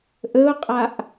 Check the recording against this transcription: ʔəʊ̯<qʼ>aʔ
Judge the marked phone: correct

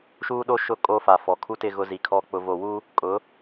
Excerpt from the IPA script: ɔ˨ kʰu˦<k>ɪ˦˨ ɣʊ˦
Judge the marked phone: incorrect: t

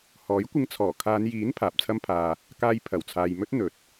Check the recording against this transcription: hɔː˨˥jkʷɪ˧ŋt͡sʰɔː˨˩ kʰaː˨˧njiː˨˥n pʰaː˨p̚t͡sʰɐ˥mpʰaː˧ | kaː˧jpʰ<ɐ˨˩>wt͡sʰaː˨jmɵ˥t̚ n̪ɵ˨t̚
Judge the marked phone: correct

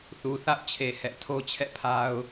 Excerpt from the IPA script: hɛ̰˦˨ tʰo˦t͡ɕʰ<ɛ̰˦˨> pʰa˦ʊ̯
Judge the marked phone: correct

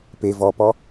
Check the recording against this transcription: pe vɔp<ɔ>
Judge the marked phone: correct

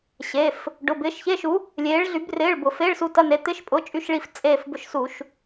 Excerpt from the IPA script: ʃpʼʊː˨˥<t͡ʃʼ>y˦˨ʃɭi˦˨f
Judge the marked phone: correct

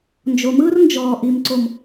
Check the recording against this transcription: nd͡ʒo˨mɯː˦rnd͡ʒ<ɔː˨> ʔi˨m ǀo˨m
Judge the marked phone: correct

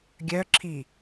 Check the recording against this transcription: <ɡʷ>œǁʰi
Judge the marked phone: incorrect: ɡʲ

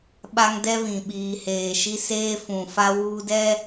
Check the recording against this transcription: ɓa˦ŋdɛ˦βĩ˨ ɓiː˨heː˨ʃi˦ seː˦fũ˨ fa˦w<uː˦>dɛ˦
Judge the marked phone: correct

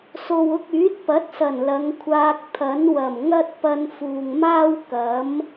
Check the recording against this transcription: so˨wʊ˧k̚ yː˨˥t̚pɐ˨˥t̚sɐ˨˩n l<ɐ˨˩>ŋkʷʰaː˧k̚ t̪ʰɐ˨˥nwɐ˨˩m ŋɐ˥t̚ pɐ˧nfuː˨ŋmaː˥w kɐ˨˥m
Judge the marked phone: incorrect: ɐ˨˧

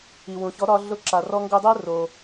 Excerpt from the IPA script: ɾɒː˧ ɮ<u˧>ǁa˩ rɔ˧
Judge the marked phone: incorrect: ʊ˧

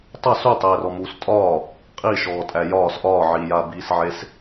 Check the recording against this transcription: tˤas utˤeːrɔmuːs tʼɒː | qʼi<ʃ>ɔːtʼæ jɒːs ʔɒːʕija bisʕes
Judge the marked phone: correct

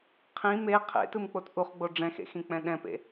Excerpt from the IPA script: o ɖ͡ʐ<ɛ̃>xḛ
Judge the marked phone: correct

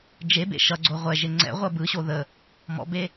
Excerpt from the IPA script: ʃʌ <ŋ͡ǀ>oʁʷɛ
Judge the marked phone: incorrect: ɡ͡ǀ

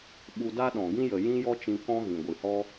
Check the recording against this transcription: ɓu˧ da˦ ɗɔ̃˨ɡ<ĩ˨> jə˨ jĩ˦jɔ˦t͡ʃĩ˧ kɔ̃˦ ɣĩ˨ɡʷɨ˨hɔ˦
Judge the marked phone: incorrect: ĩ˦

